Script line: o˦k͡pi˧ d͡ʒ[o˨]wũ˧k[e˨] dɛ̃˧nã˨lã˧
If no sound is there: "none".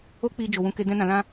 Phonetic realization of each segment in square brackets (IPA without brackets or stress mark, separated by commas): o˨, e˧